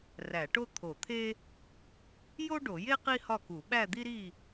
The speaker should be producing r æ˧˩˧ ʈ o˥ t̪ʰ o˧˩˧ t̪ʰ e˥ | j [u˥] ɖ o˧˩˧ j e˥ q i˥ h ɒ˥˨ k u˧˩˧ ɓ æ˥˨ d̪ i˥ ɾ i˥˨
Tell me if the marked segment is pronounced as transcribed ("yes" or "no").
no